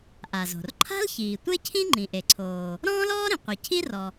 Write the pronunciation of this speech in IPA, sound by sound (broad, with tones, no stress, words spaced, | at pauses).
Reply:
ʔa˩zo̤˩r ǃʰa̤˥lçiː˩ tʷe˥cʰĩ˥ ŋ͡ǃĩ˩ʔe˩ǀʰoː˩ | ɾɔ̃ː˥lɔː˥ɾĩ˩qʷe˩ cʰi˥rɔ˩